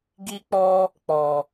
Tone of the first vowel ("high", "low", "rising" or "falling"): high